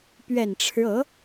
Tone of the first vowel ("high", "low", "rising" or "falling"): low